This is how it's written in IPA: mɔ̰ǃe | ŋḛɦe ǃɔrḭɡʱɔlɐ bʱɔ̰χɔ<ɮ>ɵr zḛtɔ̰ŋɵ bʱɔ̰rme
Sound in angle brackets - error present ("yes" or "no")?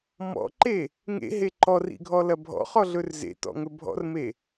no